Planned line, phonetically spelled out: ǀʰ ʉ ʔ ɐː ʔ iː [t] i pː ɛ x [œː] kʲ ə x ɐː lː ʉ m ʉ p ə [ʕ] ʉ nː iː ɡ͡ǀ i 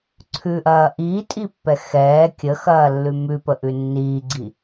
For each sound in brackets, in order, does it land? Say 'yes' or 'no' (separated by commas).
no, no, no